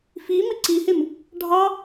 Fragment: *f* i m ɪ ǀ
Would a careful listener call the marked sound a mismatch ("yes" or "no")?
no